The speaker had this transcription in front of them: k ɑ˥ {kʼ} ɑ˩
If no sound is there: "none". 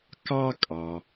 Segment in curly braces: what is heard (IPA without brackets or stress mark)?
kʼ